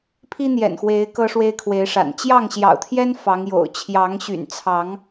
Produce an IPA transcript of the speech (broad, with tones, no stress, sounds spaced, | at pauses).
pʰ i˦ n̪ j ɛ̰˨˩ n x w e˨˦ ɪ̯ k ɤ˦ ʂ w e˦ ɪ̯ kʰ w e˨˦ ɪ̯ ʂ a̰˨˩ n t͡ɕ j ɑ˥˨ ŋ ɕ j ɑ̰˨˩ ʊ̯ t̪ʰ j ɛ˦ n f ɑ˨˦ ŋ j o̰˨˩ ʊ̯ t͡ɕʰ j ɑ˨˦ ŋ ɕ y̰˨˩ n t͡sʰ ɑ˨˦ ŋ